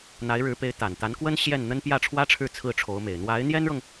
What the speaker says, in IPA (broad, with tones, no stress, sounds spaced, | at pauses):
n̪ a˧˥ ɪ̯ ɻ ɻ̩˧˥ p e˧˥ ɪ̯ t̪ a˨˩ n t̪ a˧˥ n k w ə˥ n ɕ j ɛ˥˩ n n̪ ə˥ n p j ä˥˩ ʈ͡ʂʰ w ä˥ ʈ͡ʂʰ ɻ̩˥˧ t͡sʰ ɹ̩˥˩ ʈ͡ʂʰ o˧˥ ʊ̯ m e˨˩ ɪ̯ n̪ w a˧˥ ɪ̯ n̪ j ɛ˥ n ɻ ɤ˨ ŋ